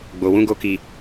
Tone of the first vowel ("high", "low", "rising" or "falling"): low